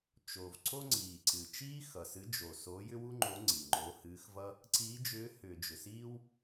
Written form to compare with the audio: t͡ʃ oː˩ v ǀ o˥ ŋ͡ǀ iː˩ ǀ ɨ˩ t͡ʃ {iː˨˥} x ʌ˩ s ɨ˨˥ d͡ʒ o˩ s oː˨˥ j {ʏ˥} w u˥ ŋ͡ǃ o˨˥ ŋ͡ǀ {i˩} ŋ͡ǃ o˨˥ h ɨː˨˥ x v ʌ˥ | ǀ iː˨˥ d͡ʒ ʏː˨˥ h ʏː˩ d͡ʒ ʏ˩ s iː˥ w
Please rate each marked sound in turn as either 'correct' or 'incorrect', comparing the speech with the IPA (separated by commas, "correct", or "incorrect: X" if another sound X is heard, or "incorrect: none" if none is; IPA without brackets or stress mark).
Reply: incorrect: iː˥, correct, correct